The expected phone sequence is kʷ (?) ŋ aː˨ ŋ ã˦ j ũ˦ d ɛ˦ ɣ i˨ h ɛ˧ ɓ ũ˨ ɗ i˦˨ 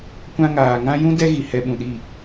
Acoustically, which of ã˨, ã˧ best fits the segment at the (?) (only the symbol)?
ã˧